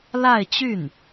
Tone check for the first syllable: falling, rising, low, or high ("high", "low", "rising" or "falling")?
falling